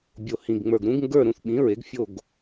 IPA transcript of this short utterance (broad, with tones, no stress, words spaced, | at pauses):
bʲo˩hĩ˩ɡ ŋ͡mə˞˩ɡɾũ˩˥ɡŋɡə˞˥˨ ɾũ˥˨θɓĩ˩˥ ɹe˩˥ɡfʲo˥˨ɡ